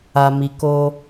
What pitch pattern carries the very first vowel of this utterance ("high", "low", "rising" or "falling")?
low